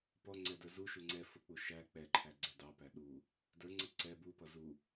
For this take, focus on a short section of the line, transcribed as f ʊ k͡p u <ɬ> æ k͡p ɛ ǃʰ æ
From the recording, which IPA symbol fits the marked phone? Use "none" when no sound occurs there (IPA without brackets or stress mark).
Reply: ʃ